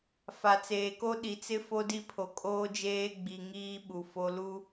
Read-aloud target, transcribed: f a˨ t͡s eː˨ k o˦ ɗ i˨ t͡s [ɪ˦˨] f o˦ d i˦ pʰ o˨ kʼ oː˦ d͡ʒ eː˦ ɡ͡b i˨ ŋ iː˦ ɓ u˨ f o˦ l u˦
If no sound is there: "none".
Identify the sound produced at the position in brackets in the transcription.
ɪ˦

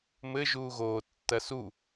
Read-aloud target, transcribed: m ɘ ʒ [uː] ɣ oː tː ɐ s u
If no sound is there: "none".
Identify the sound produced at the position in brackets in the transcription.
uː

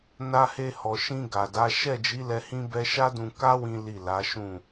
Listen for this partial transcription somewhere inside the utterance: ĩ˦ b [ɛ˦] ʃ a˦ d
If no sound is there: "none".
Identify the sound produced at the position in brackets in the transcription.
ɛ˦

